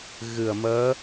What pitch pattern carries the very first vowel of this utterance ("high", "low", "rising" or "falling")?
low